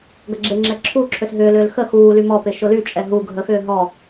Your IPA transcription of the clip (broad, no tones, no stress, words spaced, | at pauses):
ɡɐɡ͡ǁeŋ͡ǁɛ ǁʰuːǁʰøs ɦʏːlʏːl xə xuːly mɔpɪ ʃʊlyt͡ʃʼɛ ɦu ɡʱəxʏː ɦɔ